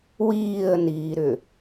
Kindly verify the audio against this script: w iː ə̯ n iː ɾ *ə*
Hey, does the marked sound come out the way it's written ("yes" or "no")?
no